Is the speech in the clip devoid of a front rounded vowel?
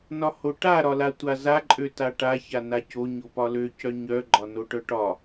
no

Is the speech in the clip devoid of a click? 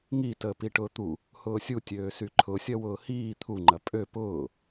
no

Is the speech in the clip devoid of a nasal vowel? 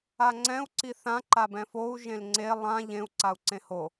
no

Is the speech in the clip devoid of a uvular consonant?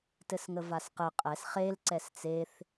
no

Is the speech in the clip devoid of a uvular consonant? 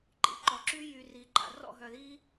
yes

